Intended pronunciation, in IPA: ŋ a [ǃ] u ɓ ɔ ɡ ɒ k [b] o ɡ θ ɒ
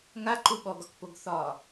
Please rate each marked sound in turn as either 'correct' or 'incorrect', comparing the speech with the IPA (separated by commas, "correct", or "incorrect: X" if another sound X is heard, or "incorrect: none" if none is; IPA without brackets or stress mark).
correct, incorrect: p